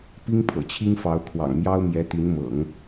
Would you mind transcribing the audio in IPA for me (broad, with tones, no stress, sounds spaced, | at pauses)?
p i˥ ŋ pʰ ɤ̰˨˩ t͡ɕʰ i˥ ŋ f ɑ˧˥ ʊ̯ kʰ w ɑ̰˨˩ ŋ m j ɑ˥ ʊ̯ m j ɛ˧˥ t̪ i˧˥ n m ɤ̰˨˩˦ ŋ